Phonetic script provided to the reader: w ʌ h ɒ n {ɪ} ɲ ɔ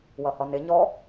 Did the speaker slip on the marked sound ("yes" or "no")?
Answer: no